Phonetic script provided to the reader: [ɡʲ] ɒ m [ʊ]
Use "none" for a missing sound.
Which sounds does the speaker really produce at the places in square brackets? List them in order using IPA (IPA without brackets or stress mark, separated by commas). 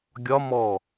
ɡʲ, ɔ